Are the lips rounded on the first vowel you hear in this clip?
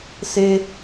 no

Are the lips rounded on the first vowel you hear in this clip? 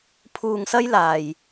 yes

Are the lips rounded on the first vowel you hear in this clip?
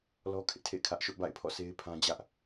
yes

